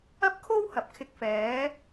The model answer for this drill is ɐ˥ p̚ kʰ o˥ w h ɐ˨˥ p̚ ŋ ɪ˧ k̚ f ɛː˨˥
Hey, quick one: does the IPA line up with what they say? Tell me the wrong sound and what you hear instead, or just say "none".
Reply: ŋ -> kʰ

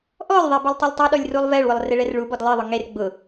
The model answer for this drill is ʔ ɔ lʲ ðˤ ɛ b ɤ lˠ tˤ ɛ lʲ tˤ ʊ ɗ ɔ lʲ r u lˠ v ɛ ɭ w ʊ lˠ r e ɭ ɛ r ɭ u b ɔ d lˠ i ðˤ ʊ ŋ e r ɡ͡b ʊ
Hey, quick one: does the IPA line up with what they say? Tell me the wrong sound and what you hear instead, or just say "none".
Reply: none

